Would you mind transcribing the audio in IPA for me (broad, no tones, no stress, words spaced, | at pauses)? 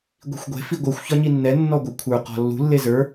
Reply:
ɡʷi̤xʷɡʷe̤ fiɡʷɯxʷ çɒɲinːɛ nːɔɡʷɛkʷʰə˞ qɔ̤lːṳ lːezə˞